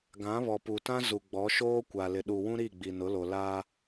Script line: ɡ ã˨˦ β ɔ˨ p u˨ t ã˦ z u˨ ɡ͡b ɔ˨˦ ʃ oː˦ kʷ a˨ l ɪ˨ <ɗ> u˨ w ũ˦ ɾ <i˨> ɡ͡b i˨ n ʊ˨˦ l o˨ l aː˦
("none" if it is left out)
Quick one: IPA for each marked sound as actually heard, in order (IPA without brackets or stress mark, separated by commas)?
ɗ, i˦˨